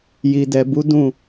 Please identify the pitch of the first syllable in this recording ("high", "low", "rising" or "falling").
low